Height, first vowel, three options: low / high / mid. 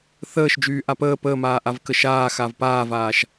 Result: mid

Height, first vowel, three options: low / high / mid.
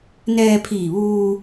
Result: mid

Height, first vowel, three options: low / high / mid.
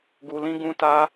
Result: high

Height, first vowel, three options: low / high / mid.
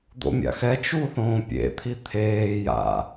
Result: mid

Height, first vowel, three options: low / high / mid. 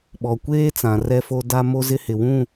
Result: mid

